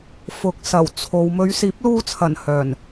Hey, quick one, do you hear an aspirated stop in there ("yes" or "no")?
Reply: yes